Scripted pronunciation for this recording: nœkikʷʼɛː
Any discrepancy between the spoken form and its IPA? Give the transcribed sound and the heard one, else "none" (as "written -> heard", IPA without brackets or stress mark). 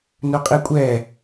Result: k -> qʼ